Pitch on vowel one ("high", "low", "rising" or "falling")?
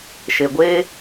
low